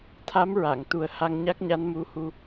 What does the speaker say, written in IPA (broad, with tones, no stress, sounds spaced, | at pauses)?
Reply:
t̪ʰ a˧˥ m ɹ a˨˩˨ ŋ t̪ u˨˩ ə̯ h a˧ ŋ ɲ a˦˥ k̚ ɲ a˧˥ n m u˧˥ h u˧